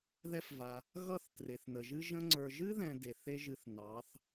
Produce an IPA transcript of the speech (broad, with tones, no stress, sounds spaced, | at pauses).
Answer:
ð ɛ˦ f v a˧ | ɣ ʌ˦˨ θ t r e˨ θ n ə˨ ʒ ɨ˦ ʒ ə̃˧ ŋ͡ǀ ə˞˨ ʒ ɨ˦ ð ɛ̃˨ d e˨ θ e˦ ʒ ɨ˧ θ n ɑ˨˦ θ